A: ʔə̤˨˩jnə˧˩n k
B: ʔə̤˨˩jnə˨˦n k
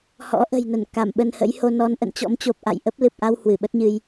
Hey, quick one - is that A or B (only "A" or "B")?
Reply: A